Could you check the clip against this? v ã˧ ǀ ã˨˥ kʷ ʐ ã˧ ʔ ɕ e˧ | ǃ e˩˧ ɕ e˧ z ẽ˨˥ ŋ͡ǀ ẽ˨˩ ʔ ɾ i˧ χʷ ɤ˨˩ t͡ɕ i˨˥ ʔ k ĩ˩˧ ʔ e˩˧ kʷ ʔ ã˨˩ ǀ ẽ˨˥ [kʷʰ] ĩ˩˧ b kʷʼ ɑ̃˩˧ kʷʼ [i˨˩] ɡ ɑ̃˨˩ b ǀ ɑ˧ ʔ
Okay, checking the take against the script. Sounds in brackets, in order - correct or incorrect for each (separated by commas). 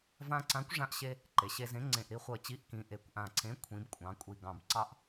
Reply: correct, correct